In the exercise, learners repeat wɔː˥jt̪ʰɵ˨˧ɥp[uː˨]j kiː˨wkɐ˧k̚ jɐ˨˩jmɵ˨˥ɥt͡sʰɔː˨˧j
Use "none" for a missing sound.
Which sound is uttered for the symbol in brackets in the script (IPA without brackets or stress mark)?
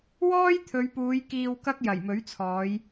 uː˨˧